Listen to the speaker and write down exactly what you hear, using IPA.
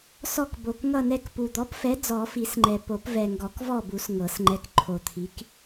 sɔ˦˨kbo˨˩k ŋʌ˦˨nɛ˦˨k pu˨˩d̪ɔ˨˥pfɛ˨˥ d͡zɔ˨˩˦fi˨˩˦sŋ͡ǃɛ˨˩ po˨˩˦pvɛ˨˩ŋɡɔ˨˩˦k vɔ˦˨bu˨˩˦s ŋɤ˨˩˦sŋ͡ǃɛ˨˥k ǃʰo˨˩t̪ʰi˨˥k

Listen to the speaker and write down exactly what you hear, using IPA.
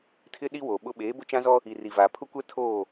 tʰɪ˦ ɗi˦wo˨ɓʊ˦ ɓeː˨˦bʊ˦t͡ʃã˦zɔ˦ | i˨ri˨vaː˨ pʰʊ˦kʷɛ˦ tʰoː˦˨

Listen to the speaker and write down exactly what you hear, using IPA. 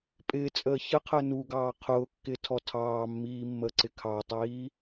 pʼɪːt͡sʼəː çəqʰəː nuɡɑː qʰʊːkːɪːtʰɔ tʰɑːmːiːmːəːǀɪ kʰɑtˤiː

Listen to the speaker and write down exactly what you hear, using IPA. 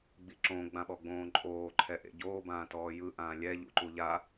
ɡ͡biǁõ ɡ͡bãɓɔɡ͡bõːǃʼoː ǃʰɛʔḛɟoː bãːtɔːjɯ ʔãːlʲɛ ʎṵǃuʎa

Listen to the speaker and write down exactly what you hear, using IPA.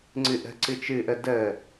ŋ͡ǀɨʔə̤ ǀɨt͡ʃɨʔə də

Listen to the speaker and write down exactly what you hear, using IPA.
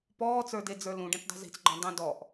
pɔːt͡sə˞de d͡zə˞lũ ɖẽt͡ʃdˤṳzi̤t͡sɡ͡ǃɔ̃ dˤũ dɔʔ

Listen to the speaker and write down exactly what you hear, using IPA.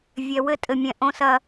vʲɛ˨wɘ˦ tʼɘ˨mʲɛ̃˨ʔõ˦ sɐ˦

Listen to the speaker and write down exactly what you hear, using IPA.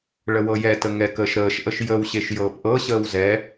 ɭəwɤjɛtə ŋɛkəːʃɾəːʃʔəʃ jəwɕeʃ jɤːpʔɤɕəːw zɛ

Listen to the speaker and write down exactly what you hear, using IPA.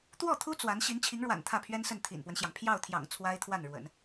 t̪wɔ˥˩t̪ʰu˥ t͡swa˧˥n ɕi˧˥nt͡ɕʰi˧˥ŋɻwa̰˨˩n t̪ʰä˥˩pʰɥɛ˥nsə˥˩n t̪ʰḭ˨˩npwə˦nɕjɑ˩ŋ pʰjɑ˥˩ʊ̯t̪ʰjɑ̰˨˩ŋ t͡sʰwa˥ɪ̯t̪ʰwa˥˩nɻwə̰˨˩˦n

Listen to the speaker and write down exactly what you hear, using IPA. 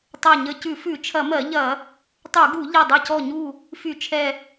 tˤɜ˧˩ɲə˧˩ cʉ˧˩˧fʉ˧˩˧t͡ʃʰɐ˧˩˧mɜ˧˩˧ ʎɐ˧˩˧ | tˤu˧˩˧ɡu˧˩˧ ʎɐ˧˩dˤə˧˩cɔ˧˩ɲu˧˩ | fy˧˩˧t͡ʃʰɛ˧˩

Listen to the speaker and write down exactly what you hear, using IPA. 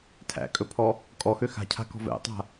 tʰæ̰kʼɵpʰɔ | kʼɔxø xa̤cʰa̤kɔ̤ vɛ̰tˤa̤

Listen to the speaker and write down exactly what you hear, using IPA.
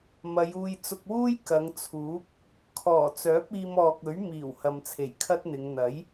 mɐ˨˧juː˧j t͡sʊ˧k̚wuː˥j kɐ˨˧ŋt͡sʰuː˨˥k̚ | kʰɔː˨˩t͡sœː˨˥p̚iː˧m ɔː˨k̚ɵ˨˥ɥ miː˨˩w hɐ˨mt͡sʰe˨˩jkʰɐ˥t̚n̪ɪ˨˧ŋ n̪ɐ˨˥j

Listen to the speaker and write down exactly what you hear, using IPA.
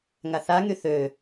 ŋaθaŋy θø

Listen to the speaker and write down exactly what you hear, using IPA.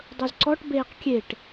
dˤɵzǀɔʈ beːqkʲeʈ

